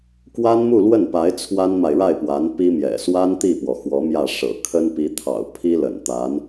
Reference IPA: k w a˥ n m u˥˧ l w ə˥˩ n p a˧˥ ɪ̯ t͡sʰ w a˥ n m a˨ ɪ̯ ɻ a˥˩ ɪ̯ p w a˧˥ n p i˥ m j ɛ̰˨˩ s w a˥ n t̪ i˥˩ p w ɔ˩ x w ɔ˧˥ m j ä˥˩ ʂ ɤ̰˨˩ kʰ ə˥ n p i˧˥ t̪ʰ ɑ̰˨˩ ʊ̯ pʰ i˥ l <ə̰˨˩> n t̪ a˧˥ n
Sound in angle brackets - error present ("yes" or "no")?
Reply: no